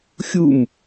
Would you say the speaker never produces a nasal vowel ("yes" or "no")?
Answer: yes